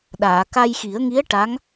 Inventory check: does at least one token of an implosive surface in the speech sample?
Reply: yes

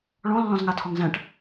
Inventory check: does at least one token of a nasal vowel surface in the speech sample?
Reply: yes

